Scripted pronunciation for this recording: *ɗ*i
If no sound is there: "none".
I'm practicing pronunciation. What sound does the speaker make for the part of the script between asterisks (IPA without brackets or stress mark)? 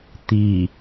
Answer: t̪